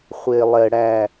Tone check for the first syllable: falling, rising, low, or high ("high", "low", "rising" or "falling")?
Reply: high